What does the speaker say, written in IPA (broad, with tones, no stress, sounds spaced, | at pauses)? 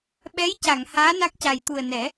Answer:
ɓ ɛ˧˥ j c a˨˩˨ ŋ h aː˧˥ n a˦˥ k̚ c a˨˩ j t̪ u˨˩ ə̯ n ɛ˨˩˦